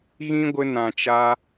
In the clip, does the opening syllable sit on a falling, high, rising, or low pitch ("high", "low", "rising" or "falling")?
high